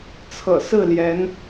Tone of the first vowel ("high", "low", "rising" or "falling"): low